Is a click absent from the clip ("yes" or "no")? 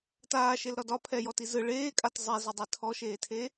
yes